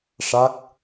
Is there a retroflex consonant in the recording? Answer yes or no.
yes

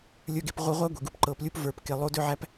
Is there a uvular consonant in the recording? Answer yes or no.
yes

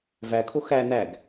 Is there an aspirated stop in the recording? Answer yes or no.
yes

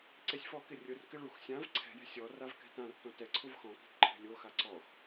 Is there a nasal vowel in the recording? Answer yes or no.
yes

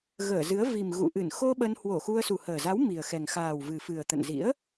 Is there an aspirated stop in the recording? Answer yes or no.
no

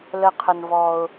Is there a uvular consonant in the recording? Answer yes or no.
yes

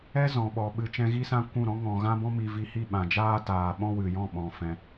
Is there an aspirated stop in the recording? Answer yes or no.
no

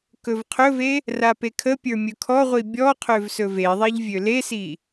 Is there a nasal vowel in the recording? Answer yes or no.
no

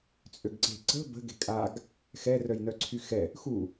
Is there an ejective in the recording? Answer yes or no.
yes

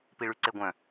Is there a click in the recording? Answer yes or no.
yes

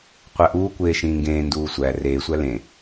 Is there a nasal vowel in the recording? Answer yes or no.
yes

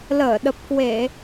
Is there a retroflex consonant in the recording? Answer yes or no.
no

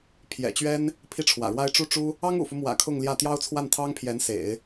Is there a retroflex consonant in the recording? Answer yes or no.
yes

